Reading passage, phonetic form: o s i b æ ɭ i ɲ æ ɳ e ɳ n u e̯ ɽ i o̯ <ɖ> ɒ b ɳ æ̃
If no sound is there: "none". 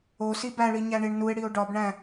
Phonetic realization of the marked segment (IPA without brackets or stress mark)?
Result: ɖ